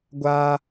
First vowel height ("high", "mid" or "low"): low